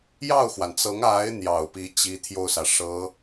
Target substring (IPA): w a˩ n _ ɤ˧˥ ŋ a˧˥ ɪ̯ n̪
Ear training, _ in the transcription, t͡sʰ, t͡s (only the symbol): t͡s